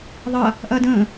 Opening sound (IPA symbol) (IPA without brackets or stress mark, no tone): ðˤ